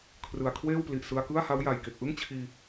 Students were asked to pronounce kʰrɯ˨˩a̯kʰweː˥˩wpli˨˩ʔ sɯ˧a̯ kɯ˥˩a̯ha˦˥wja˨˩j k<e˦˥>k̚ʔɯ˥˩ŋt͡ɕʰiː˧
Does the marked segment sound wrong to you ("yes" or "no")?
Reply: yes